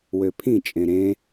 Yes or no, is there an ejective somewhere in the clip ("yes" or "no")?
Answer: yes